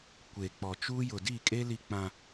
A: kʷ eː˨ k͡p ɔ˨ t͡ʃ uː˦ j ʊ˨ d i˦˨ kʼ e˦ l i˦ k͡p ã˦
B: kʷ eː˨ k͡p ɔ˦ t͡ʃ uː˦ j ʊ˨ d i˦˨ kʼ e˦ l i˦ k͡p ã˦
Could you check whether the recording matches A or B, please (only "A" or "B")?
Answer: A